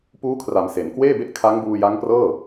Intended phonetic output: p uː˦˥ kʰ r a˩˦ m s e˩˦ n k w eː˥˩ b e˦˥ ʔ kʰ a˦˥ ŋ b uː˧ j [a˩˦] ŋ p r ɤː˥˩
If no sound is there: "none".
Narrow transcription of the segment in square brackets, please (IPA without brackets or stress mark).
a˦˥